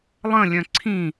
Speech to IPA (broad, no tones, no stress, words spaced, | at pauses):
lˠə̃lʲœ̃ ǀʰĩ